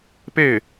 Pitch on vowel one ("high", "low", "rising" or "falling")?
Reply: falling